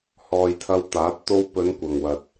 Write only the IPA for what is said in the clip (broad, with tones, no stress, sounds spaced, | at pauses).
h ɔː˧ j t̪ʰ ɐ˧ w t̪ aː˨˥ t̚ t̪ o˧ w p ɵ˨˧ n kʷ ɐ˨ ŋ w ɐ˨ t̚